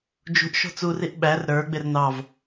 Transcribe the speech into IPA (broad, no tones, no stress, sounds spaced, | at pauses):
d͡ʒ ṳ ʔ ʃ ɔ̤ t͡s u r i ʔ ɓ æ r ɾ ə˞ ɡ͡b ɪ r n ɑ v